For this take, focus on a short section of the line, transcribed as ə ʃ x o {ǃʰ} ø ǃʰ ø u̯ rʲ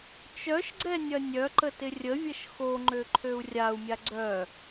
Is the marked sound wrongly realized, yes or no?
yes